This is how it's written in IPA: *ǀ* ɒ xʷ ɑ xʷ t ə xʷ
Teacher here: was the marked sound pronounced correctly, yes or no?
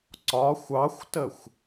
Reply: yes